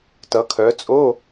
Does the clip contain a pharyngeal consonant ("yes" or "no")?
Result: no